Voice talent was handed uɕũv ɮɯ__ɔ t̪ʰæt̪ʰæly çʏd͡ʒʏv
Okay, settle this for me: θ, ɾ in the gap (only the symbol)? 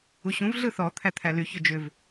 θ